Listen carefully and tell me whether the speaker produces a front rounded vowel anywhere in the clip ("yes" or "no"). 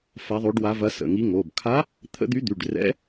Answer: yes